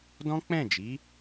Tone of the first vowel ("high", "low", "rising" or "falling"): high